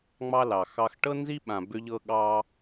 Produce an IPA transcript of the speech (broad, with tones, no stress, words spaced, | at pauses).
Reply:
ŋ͡mɑ˦lɑ˨ xɑ˦x ʈɤ˦nzi˦ɓã˨ bʏ˦ʎɤ˦ɠɑ˦